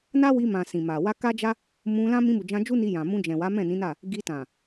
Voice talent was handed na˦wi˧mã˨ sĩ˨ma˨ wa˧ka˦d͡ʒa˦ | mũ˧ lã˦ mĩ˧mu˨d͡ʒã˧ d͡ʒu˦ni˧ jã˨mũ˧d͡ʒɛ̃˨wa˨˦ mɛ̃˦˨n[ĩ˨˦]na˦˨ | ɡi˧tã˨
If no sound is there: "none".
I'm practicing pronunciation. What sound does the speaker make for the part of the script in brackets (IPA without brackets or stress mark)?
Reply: ĩ˨˦